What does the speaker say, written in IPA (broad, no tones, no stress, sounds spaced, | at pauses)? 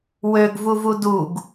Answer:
w ø ɡ v u v u d u ɡ